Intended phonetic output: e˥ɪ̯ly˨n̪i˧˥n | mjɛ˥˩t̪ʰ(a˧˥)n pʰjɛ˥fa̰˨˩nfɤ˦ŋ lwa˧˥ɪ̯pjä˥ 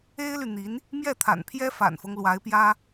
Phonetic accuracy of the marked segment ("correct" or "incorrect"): incorrect